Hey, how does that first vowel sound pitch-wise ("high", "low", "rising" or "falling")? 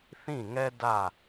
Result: falling